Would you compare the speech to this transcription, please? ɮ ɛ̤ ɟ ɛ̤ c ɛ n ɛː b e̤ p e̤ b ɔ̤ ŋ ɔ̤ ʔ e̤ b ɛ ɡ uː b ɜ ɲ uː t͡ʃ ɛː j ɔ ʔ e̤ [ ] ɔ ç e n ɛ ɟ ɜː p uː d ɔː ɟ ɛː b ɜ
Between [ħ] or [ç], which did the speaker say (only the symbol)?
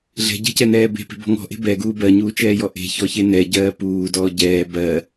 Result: ç